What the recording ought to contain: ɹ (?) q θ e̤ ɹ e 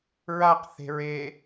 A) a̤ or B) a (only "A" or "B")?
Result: B